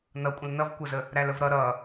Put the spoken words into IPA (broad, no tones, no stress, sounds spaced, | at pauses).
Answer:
n ʌ kʷʼ ə̃ l n ʌ v kʷ ʌ z ə | ɾ æ l ə v ɾ ʌ ɾ ʌ